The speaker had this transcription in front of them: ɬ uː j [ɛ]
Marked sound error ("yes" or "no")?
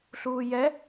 no